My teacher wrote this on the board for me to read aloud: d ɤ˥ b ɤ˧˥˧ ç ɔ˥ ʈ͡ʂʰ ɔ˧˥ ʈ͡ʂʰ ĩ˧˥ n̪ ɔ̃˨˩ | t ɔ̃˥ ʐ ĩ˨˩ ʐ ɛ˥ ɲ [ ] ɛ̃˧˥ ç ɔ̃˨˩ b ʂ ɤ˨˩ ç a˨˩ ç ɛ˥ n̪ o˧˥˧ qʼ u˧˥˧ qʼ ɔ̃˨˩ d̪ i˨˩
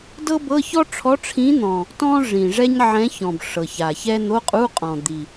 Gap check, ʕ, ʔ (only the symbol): ʕ